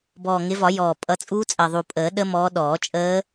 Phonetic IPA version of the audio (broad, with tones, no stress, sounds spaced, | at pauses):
b ɔː˨˩ ŋ ɪ˨˦ v ɒ˨˩˦ j ɔː˨˩ pʼ ʌ˨˦ t͡sʼ uː˦˥ t͡sʼ ɜ˨˩ ðˤ u˨˩ pʼ əː˨˩˦ ɗ ə˦˥ m ɔː˨˦ ɗ ɔː˨˩˦ t͡ʃʼ əː˦˥